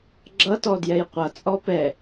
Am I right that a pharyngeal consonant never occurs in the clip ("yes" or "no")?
yes